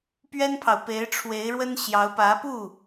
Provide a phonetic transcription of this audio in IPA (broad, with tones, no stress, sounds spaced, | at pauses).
p ɥ ɛ˥ n pʰ ɑ˨ ʊ̯ p e˧˥ ɪ̯ ʈ͡ʂʰ w e˧˥ ɪ̯ ɻ w ə˥ n ɕ j ɑ˧˥ ʊ̯ p ä˧˥ p u˥˩